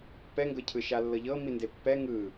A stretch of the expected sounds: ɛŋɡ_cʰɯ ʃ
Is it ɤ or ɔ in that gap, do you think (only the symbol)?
ɤ